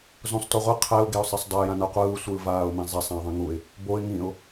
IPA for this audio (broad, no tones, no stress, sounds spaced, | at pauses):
z õ sˤ t o ʁʷ e qʰ ɛ ʊ̯ ɡ e ʊ̯ sˤ e sˤ dˤ ɛ j ã n a qʷ ɯː sʷ ɯː v aː ʊ̯ m ẽ zˤ ɛ sˤ ã ɪ̯ ðˤ ĩ ŋ u ɪ̯ | b o ɪ̯ ŋ ĩ ʊ̯